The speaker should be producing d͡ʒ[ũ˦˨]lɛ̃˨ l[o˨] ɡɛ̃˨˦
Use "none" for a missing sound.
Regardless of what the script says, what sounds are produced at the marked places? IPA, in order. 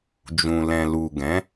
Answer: ũ˨, u˨

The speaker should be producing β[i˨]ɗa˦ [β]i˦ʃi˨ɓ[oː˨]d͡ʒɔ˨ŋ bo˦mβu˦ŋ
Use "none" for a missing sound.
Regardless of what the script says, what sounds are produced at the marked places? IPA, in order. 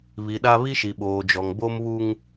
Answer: i˨, β, oː˨

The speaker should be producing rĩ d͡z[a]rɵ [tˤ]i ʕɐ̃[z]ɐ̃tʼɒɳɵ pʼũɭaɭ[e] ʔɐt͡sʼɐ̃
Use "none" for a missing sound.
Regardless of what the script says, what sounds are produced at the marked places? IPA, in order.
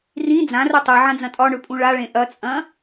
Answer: ã, tˤ, d͡z, ẽ

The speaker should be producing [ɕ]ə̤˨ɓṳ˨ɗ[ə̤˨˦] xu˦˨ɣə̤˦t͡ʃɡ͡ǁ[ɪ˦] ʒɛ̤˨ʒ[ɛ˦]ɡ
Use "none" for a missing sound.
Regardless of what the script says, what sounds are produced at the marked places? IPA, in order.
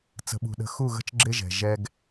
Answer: t͡s, ə̤˨˦, ɪ˦, ɛ˦

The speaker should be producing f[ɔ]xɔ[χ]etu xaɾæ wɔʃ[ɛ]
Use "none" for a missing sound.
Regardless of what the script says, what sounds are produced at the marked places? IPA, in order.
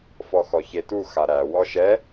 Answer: ɔ, ç, ɛ

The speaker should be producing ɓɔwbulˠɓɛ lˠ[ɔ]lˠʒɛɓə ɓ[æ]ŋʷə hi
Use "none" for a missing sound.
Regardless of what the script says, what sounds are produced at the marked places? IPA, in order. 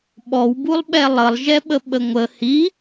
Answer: ə, ə

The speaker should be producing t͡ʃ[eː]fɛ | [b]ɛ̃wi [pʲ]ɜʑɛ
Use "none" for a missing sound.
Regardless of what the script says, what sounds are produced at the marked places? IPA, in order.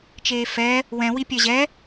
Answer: eː, w, pʲ

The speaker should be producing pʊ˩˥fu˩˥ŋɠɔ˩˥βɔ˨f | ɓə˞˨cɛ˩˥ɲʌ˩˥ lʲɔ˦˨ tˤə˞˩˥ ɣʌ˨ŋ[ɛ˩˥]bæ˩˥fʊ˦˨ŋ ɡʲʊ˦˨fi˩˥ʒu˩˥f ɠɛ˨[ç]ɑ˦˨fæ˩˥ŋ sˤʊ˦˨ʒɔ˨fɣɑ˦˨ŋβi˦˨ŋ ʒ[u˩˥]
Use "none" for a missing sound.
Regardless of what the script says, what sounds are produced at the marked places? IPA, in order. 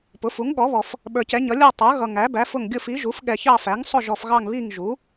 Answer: æ˩˥, ç, u˩˥

